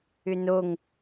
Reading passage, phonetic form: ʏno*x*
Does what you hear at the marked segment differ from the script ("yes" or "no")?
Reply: yes